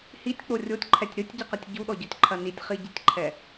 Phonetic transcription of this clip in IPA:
h i tʲ k͡p o rʲ o tʲ ǃʰ ɛ tʲ ɾ ɨ tʲ ɟ ɨ q ɐ tʲ ɟ u ɗ ɔ ɟ ɔ tʲ ǃʰ ɐ n i tʲ χ i ɟ i tʲ ǃʰ ɛ

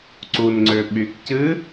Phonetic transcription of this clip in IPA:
ǀ u n ŋ͡ǀ ø ɓ y k c ɨ

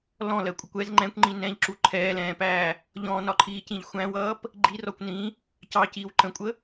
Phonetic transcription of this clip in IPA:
l ɔ̃ l ɜ kʷʼ ə kʷ ɛ z ŋ͡ǃ ɛ̃ kʷ ŋ͡ǃ ĩ n ɛ̃ ʎ ǁ u ǃʰ ɛː l ɛ̃ː p æː | ʎ ɔ̃ n ɒ ǃʰ iː c ĩ ʎ xʷ æ̃ w ʌː p | ɡ͡ǃ i r ɔ kʷ n ĩ | c ɑ c iː w ǃ ə̃ kʷʼ ə

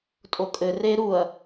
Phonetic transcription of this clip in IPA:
tʼ o kʼ ɘ r e ɾ u ɐ̯

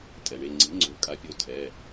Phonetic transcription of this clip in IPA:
tʼ ɛ˩ ɳ e˩˧˩ ŋ͡ǀ i̤˩˥ ŋ͡ǀ o̤˩˥ kʼ a˩˥ pʲ o˩˧˩ tʰ ɛ˩˧˩

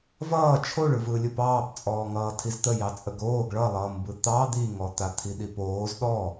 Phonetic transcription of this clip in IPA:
v ʌː t͡ʃʰ o ɭ ɯ v ɯ lʲ ɯ p ɑː p t͡sʼ ɔː ŋ ʌː tʰ i z t̪ ə j ɑ t͡sʼ ə ɡ oː ɡ ɭ ʌ lˠ ʌː m b ɯ t̪ ɑ d̪ i ŋ ɔ t̪ a t̪ʰ i ɗ i p oː z ɗ ɔ

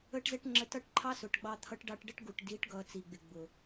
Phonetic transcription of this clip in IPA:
ə˦ ʈ z ɛ˦ ʈ ŋ͡ǁ ə˧ t ʌ˦ ʈ ǃʰ ɑ˦ s ʊ˨ ʈ ɡ͡b ɑ˧ t̪ʰ ʌ˧ ʈ ɖ ɑ˧ ʈ ɖ ə˦ ʈ ɡ u˨ ʈ d i˨˦ ʈ ɡ ʌ˧ t͡s i˨ ɡ͡b ɪ˨ ɡ͡b ʊ˨

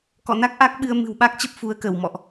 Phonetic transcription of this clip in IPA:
k ɔ̰˧˨ n a˦˥ k̚ ʔ a˦˥ k̚ ɓ ɨ˧ ə̯ m ɨ̤˨˩ w ɓ a˦˥ k̚ t͡ɕ ə˦˥ p̚ f u˨˦ ə̯ k ə˧˩ w m ɔ̰˧˨ ʔ

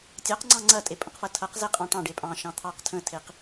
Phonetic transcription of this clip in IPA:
tʲ ɑ q ŋ͡ǀ ɑ̃ ŋ͡ǀ ɐ tʼ e pʼ ə̃ q f ɐ tʰ ɐ q z e qʼ ɑ̃ ʈ ɑ̃ ɖ e pʼ ɑ̃ ʃ ɑ̃ t̪ʰ ɑ q tʰ ə̃ tʰ e q

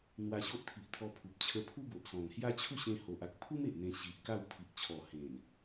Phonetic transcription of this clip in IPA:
n̪ w a˧ ɕ o˦ ʔ t̪ʰ i˨ ʔ t̪ʰ ɔ˧ pʰ u˨ p̚ t͡ɕʰ ə˧ pʰ u˦ b o˨ ʔ s ɔ̃˨˩ ŋ h j a˦ t͡ɕʰ u˥˧ ɕ ẽ˧ h o˨ ʔ a˨ k̚ pʰ u˦ m e˨ ʔ n̪ ẽ˧ ɕ i˨ ʔ k a˥˧ w pʰ i˨ ʔ t͡ɕʰ ɔ˨˩ h ẽ˨˩ n

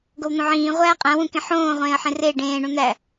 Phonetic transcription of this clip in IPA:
ɡ o w n̪ õ ʕ ĩː ʁʷ æː qʼ æ̃ w ũ k ẽ ħ õː ʁʷ ẽː ə̯ ħ ẽ r e ɖ ẽː ɳ ũ n̪ æ

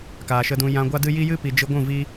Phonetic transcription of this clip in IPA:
k aː˨ ʃ ə˧ d ũ˧ j ã˧ ɡʷ a˦ d ɨ˦ j i˦ j ɨ˦ p i˨ d͡ʒ ɨ˧ ɡʷ ũ˦˨ v i˦

